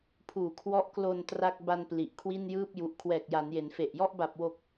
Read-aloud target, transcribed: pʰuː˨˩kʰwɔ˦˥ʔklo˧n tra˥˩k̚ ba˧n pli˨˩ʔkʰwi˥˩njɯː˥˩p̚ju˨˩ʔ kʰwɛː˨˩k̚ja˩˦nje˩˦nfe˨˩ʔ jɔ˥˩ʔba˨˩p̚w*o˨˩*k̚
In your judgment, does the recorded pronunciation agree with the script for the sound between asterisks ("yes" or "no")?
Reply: yes